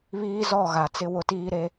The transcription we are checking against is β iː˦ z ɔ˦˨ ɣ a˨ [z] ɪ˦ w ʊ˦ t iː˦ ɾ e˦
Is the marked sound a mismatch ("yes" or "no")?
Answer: yes